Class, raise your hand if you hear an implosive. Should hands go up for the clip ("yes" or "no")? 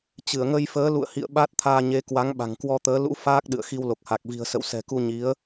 yes